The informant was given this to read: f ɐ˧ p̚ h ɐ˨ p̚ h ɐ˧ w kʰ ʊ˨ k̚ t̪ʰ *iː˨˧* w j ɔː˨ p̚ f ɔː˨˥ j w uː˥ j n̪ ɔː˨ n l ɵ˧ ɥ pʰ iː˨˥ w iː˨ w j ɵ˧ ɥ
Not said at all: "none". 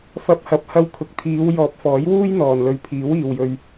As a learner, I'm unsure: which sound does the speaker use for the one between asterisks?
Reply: iː˨˧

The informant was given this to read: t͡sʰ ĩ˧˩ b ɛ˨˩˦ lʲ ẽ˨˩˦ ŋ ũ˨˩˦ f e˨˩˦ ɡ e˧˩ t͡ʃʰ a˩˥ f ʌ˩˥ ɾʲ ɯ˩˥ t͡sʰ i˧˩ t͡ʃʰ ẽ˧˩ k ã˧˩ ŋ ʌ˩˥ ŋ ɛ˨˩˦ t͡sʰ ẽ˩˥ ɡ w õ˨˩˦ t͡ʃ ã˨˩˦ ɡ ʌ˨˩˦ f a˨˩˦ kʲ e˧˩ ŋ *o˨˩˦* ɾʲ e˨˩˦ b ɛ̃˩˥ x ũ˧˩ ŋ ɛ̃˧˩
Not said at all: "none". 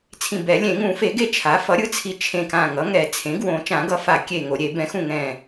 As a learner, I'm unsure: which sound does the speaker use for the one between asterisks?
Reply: o˨˩˦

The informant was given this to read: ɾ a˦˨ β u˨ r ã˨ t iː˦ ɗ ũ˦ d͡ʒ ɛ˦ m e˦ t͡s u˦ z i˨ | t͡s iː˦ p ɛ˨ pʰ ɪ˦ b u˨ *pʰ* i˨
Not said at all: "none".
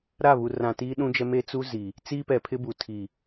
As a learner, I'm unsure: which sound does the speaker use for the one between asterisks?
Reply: tʰ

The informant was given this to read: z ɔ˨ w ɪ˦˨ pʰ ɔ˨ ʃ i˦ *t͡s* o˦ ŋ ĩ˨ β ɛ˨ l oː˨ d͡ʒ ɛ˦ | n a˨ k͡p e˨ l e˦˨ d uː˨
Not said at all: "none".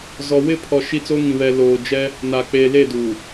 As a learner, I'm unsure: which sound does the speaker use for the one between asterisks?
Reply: t͡s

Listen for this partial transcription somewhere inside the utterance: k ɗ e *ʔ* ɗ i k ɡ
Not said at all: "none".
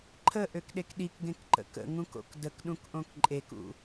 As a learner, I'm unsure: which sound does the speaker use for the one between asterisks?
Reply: k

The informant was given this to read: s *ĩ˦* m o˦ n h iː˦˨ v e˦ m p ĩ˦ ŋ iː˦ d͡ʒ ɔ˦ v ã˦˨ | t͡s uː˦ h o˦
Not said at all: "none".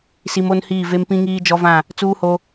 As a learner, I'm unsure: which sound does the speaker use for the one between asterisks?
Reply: i˦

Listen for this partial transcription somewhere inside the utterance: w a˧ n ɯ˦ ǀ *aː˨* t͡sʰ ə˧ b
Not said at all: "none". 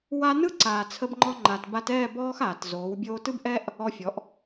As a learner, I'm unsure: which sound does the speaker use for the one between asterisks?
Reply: aː˨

